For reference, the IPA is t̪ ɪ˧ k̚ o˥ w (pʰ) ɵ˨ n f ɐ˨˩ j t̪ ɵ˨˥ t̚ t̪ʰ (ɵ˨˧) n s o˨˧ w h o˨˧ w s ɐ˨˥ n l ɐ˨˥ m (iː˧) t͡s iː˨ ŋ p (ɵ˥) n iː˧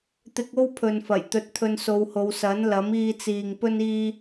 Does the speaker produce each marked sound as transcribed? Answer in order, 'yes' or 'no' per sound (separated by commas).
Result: yes, no, yes, yes